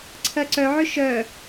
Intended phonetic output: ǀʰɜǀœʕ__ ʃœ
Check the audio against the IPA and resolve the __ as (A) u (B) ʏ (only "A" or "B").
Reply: B